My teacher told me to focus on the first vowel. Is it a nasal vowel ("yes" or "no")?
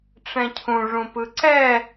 yes